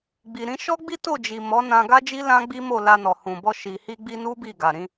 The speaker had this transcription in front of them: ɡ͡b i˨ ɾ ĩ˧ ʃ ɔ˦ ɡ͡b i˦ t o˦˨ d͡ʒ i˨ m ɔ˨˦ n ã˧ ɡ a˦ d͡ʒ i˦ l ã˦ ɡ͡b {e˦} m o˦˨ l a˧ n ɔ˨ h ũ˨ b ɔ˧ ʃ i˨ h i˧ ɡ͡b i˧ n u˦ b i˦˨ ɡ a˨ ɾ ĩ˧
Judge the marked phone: incorrect: i˦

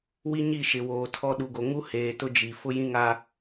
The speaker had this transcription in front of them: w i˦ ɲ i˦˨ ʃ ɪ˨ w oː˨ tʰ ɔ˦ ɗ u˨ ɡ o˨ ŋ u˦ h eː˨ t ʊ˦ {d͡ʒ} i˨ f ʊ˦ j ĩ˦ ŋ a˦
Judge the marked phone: correct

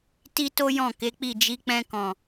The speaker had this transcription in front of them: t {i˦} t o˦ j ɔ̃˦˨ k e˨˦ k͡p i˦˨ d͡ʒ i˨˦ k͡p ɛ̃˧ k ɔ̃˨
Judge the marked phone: correct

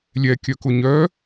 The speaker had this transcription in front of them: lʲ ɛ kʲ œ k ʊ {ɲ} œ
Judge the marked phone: correct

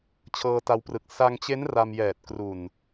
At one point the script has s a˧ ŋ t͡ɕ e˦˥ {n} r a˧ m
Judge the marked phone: correct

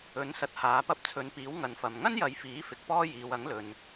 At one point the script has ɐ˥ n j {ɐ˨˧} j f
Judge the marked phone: correct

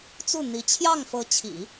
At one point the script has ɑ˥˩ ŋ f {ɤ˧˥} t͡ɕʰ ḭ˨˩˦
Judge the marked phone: correct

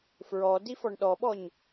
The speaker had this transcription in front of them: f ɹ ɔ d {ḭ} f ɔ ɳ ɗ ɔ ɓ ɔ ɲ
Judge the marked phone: incorrect: i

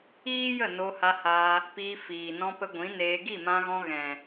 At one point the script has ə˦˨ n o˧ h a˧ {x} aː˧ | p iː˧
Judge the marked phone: incorrect: h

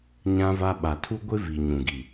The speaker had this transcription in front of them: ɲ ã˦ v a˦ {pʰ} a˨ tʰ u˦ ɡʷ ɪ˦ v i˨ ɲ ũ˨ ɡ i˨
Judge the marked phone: incorrect: ɓ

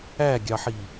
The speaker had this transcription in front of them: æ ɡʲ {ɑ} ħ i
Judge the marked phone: correct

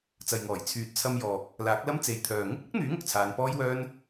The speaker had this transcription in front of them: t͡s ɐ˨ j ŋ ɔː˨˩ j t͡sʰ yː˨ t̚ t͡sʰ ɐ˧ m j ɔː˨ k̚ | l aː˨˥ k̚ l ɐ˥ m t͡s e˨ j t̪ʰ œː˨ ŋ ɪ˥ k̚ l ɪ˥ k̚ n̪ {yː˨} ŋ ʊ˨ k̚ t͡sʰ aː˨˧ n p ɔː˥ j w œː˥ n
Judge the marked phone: incorrect: yː˨˥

